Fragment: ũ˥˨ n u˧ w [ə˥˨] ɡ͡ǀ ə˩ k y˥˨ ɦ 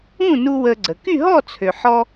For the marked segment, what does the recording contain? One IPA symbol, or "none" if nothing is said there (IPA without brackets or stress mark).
ə˧